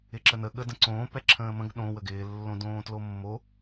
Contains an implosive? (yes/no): yes